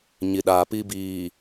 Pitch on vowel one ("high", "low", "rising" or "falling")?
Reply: low